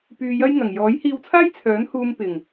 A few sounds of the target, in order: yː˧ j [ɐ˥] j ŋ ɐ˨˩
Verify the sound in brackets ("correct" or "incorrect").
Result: correct